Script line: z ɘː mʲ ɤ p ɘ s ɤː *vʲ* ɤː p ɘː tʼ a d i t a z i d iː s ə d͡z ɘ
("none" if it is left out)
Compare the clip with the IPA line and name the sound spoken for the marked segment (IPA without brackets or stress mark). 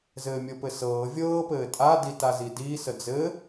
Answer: vʲ